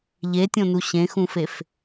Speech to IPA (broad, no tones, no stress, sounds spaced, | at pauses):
ʎ e tʲ õ n u ɕ ẽ x ũ f e f